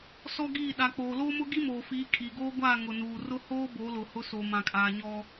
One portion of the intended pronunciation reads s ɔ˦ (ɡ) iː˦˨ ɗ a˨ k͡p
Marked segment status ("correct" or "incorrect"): correct